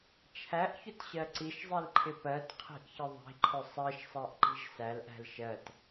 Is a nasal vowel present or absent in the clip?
absent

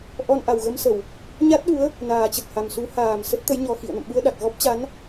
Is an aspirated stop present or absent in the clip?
absent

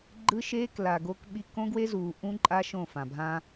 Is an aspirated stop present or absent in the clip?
absent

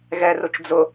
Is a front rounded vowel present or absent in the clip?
absent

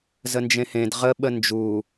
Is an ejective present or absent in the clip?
absent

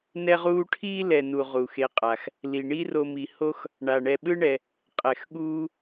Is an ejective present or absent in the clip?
present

